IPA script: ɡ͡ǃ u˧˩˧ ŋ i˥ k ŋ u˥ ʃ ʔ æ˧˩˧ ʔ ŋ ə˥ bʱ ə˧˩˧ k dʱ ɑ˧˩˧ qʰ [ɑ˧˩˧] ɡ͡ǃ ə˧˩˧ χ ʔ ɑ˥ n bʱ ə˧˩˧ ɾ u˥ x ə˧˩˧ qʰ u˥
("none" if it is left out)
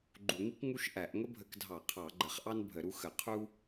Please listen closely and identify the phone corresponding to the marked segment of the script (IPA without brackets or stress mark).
ɑ˧˩˧